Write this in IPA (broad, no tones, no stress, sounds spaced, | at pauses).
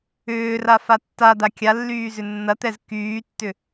ʏː r a f a tː a d̪ a kʲ a lː yː z ʏ nː ɐ t̪ ɛ z k yː tː ʏ